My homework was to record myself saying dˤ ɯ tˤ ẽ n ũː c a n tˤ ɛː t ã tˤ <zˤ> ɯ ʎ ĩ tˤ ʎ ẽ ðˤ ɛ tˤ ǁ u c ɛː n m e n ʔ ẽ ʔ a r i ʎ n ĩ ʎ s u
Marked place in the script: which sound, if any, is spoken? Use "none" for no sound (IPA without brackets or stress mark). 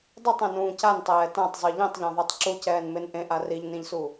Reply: zˤ